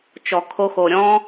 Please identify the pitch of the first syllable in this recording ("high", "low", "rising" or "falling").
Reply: low